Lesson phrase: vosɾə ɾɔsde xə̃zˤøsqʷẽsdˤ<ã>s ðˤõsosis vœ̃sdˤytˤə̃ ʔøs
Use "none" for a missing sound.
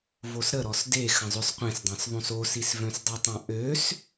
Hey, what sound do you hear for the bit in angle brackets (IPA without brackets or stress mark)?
ã